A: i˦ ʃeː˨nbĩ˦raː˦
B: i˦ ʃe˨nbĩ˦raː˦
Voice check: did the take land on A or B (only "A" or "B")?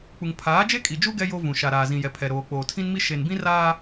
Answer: B